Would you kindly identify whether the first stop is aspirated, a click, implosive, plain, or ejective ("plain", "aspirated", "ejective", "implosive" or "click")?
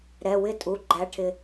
ejective